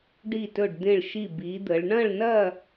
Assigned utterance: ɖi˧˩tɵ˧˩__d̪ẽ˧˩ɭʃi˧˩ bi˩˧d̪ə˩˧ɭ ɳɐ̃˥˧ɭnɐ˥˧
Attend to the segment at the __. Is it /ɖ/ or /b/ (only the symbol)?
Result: ɖ